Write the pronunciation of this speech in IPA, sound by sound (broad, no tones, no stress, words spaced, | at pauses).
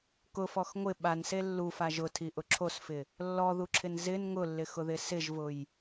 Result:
kʊfɔx ŋʷɪ ɓanse lːufa ʒʊtʰiʔʊ ǁʰosfɪ | lːɔðuǁʰɪn zɪn ŋʊlːɪxʊðɪ sɪʒvʊj